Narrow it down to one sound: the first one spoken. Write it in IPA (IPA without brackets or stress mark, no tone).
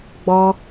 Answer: ɡ͡b